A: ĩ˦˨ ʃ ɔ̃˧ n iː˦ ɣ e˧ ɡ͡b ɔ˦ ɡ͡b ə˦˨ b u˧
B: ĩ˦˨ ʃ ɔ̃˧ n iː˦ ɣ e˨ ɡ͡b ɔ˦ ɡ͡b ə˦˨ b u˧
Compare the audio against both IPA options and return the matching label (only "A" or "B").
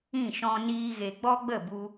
A